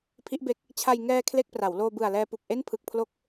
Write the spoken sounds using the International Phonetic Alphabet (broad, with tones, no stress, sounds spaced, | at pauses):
pʰ i˦˥ ʔ b e˦˥ k̚ | t͡ɕʰ a˧ j ŋ ɛː˧ kʰ l e˥˩ k̚ p r a˩˦ w l oː˧ b ɯ˨˩ a̯ l ɛː˧ p u˨˩ k̚ ʔ e˥˩ n pʰ ɯ˨˩ k̚ pʰ l o˦˥ k̚